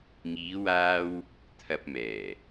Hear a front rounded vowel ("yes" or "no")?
no